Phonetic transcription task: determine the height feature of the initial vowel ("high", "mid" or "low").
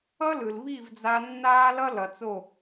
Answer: mid